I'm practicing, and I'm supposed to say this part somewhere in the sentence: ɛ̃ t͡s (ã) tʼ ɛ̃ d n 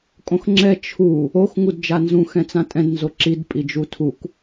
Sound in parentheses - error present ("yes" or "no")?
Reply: no